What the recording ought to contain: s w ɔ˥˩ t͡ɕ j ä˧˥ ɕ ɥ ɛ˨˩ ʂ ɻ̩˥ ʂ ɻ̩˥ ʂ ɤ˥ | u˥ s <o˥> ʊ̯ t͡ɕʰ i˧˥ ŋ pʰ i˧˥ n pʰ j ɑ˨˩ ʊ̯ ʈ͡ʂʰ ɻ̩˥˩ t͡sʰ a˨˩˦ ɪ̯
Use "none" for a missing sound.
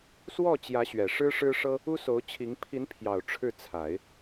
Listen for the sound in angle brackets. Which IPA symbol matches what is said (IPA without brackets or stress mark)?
o˧˥